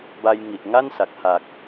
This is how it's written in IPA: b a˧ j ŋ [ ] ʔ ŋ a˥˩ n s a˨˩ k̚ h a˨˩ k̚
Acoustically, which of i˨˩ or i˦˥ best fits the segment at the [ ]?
i˨˩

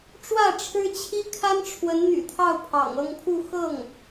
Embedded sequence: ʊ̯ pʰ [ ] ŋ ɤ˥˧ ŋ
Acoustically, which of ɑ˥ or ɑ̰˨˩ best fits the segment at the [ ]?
ɑ̰˨˩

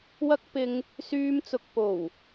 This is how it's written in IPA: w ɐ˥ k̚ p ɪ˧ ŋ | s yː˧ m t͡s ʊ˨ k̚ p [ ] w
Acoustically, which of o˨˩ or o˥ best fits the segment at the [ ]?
o˨˩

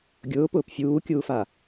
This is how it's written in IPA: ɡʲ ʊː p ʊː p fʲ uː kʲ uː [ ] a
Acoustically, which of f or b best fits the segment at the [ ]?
f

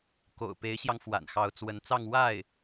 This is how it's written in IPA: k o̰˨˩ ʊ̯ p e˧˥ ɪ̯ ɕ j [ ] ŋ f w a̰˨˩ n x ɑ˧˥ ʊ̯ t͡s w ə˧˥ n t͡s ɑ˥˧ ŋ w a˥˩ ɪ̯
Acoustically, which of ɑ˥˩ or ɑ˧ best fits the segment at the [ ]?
ɑ˧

